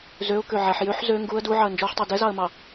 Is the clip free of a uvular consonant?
yes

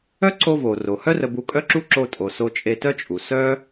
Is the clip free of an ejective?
no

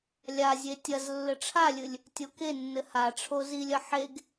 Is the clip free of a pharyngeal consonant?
no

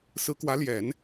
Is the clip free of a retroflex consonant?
yes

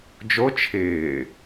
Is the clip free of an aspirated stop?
no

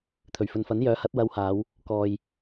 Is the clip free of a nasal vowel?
yes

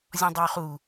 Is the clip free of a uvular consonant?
no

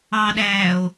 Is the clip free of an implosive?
no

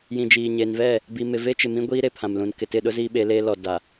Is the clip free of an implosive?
no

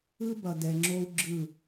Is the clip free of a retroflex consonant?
yes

